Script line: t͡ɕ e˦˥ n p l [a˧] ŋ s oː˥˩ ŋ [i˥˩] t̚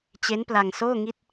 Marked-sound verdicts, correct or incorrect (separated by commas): correct, correct